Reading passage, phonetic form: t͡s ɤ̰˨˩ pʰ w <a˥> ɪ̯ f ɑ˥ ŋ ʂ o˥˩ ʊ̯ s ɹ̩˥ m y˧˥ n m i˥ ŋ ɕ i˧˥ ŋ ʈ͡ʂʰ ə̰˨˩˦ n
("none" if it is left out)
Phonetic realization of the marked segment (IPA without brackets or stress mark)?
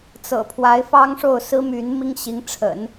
a˧˥